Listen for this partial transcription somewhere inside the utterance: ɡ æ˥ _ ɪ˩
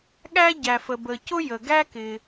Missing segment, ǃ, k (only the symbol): k